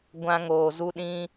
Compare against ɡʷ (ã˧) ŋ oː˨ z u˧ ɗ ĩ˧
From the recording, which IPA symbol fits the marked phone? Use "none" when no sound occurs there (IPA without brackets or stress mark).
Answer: ã˧